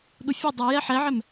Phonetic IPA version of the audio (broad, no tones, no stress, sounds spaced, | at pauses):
ɗ u fʲ ɨ dˤ u j ɛ ħ ɛ ʕ ɛ m